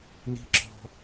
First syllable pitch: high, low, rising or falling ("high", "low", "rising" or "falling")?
high